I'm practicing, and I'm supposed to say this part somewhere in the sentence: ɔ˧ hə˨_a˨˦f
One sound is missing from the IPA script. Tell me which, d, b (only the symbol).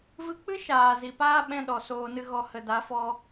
d